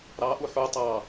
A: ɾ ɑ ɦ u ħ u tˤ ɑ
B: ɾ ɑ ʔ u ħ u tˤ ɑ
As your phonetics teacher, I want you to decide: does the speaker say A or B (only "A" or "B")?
B